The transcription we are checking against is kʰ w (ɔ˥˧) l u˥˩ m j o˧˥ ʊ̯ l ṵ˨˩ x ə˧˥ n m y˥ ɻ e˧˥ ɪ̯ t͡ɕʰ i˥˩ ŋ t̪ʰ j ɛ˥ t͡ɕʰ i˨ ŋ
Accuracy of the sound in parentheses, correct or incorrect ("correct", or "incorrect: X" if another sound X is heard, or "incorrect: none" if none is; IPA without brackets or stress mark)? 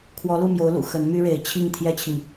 incorrect: ɔ˧˥